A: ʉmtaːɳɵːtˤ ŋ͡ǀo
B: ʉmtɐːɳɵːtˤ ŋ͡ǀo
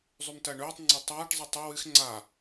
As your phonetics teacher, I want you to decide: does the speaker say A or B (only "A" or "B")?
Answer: B